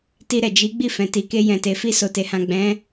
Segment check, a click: absent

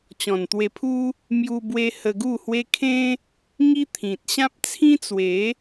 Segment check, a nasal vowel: present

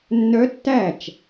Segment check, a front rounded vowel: present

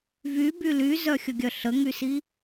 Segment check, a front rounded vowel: present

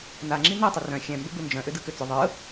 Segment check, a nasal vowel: present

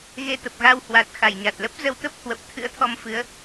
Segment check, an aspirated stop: present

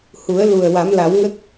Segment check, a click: absent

